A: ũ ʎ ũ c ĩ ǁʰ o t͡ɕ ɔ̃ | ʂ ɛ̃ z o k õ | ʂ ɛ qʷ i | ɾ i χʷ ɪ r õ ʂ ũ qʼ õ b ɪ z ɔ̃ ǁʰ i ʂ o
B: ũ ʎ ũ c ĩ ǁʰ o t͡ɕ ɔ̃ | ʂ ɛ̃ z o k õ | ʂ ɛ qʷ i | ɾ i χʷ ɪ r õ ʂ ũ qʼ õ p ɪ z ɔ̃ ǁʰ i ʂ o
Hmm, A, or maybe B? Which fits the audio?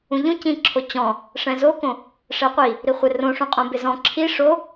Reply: A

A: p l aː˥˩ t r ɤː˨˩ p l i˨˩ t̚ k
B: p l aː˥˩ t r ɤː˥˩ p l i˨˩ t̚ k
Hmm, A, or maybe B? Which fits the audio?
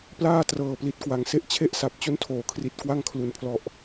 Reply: A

